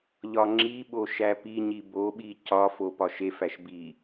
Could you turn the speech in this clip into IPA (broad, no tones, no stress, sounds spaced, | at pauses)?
ʎ ɒ ŋ͡ǁ i ɓ o ʃ æ p i ɲ i b o ɓ i c ɒ f o p ɒ ʃ e f æ ʃ b i